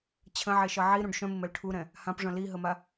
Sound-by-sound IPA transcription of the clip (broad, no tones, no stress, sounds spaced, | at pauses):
t͡ɕʰ ə̃ ʕ e ʃ ʌ ʕ i ɾ ũ ɖ ʃ œ̃ m ɪ m ɛ l ʈʰ u ɾ ɛ̃ | h ã p ʐ œ̃ l i ɦ ə m a